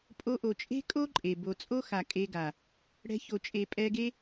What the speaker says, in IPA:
pʼo˧ʔo˨t͡ʃʼe̤˦kʼo˦ ǃʼe˨ bo˨t͡sʼo˦xa˨ kʼe˧ɡa˨ | ɽɛ̤˧ço˨t͡ʃʼe˨ pʼɛ˧ɡe˦

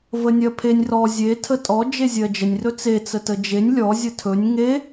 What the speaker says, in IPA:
vənʲɜpʰenʲ rɔ zʲe tʰətʼɔ d͡ʒezʲɜd͡ʒənʲ rɵt͡se t͡sətəd͡ʒenʲ lʲɔ zʲətʰɵnʲ ŋe

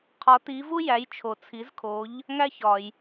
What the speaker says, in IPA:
qʰɒ˩˥ ti˩˥vu˥ jæ˩˥jt͡ʃʰo˩t͡sʰi˩˥zkʰo˩˥ʎ | ŋæ˥çɒ˩j

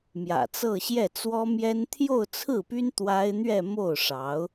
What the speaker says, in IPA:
mjä̰˨˩t͡sɤ˥˧ɕjɛ˥˩ t͡swɔ˥mjɛ˥n t̪ʰjo˥˧ʊ̯t͡sʰɹ̩˥˩py˥n t̪wa˥ɪ̯ n̪ɥɛ˥˧mo˥˩ʊ̯ʂɑ˧˥ʊ̯

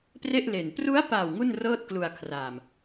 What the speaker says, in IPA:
pre˥˩ʔle˨˩n pru˦˥a̯pa˨˩w ŋu˥˩nrɤː˥˩t̚klu˧a̯kʰraː˨˩m

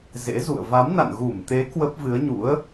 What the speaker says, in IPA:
zḛ˧˥zṵ˧˨ə̯ va˨˦mna̰˧˨nɣu˧˩mt̪e˨˦ kwə˦˥p̚vɨ˨˦ə̯ɲṵ˧˥ə̯

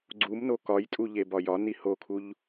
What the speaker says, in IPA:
ɡ͡ǀumno kɒjtʼuʎe bɒjɒ nihokʰuʎ

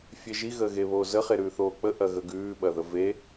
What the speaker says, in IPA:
fʲeʒi ɣəːɣeβoːzə χeɾʉːθoːk͡pə ʔɐɣəɡʉː ɓɐðəve

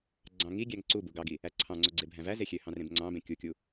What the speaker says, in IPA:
ɡ͡ǀɑ̃ŋiɡʲæŋ ǀu buɡɑɡi | æǀʰɑ̃ŋ͡ǀo ɡ͡ǀebʱæ̃væze xʲøhɑ̃ rẽbŋ͡ǀɑ̃bẽ kʲukʲu

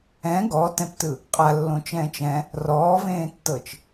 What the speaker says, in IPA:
ɛ̃ ɡɔtɛ̃ptɯ | qʼalːõt͡ʃɛ̃ːt͡ʃ ɛ̃ | rɔːvẽːtːɤt͡ʃ

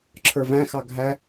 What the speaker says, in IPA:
ǁʰə˞væ̃xɑ ɡʱæ

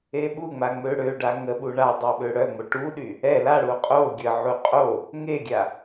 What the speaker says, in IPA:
eɓuŋ͡ma ŋ͡møɽøɖa ŋəɓu ɳa dˤoɓøɽœŋ͡mo ʈuɗy | ɛ laɽu qʼo ɡʲəʕu qʼo | ŋeɡʲa

